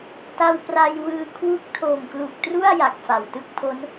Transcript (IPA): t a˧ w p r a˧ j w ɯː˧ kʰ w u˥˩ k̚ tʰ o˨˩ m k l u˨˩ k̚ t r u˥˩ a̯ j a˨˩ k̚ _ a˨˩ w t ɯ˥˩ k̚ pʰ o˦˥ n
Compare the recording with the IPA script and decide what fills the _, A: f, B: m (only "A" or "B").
A